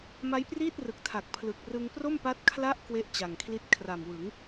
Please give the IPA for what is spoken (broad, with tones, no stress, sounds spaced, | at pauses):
m a˦˥ j p r iː˥˩ t̚ r ɯ˨˩ k̚ tʰ a˨˩ k̚ pʰ l ɯ˨˩ k̚ r ɯ˧ ŋ p r o˥˩ m p a˦˥ t̚ kʰ l a˦˥ ʔ k w e˦˥ ʔ t͡ɕ a˨˩ ŋ kʰ l i˦˥ t̚ kʰ r a˨˩ m w ɯ˩˦ ŋ